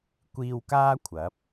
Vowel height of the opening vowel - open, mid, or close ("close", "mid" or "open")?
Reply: close